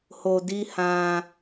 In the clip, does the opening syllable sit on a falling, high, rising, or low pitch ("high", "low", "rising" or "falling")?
low